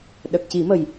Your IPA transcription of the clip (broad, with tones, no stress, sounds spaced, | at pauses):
ɗ ə˨˩ k̚ c i˨˩˦ m ə˨˩ j